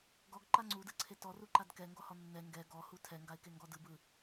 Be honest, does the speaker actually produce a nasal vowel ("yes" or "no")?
no